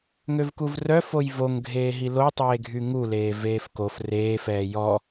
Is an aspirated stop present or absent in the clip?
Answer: absent